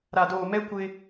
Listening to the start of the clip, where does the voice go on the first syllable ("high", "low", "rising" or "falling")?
low